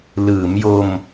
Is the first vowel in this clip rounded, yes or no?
no